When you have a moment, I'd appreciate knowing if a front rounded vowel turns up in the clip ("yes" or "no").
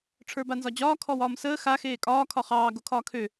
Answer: yes